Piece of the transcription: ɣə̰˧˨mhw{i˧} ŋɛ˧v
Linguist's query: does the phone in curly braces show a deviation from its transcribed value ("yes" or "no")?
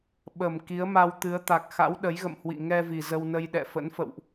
yes